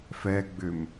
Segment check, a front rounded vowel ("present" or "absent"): present